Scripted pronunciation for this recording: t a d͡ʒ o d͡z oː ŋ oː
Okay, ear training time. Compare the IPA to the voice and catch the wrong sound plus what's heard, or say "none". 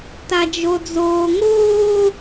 none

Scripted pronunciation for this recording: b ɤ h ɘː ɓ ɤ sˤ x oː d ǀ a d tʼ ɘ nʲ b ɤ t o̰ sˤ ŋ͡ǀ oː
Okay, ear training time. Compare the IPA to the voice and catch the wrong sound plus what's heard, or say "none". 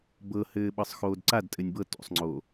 none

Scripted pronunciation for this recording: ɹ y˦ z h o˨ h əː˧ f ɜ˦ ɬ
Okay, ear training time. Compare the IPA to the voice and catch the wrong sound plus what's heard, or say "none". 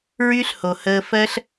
z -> ɬ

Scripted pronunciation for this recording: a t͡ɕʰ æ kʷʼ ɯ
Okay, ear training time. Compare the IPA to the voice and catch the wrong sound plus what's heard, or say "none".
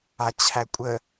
ɯ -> ə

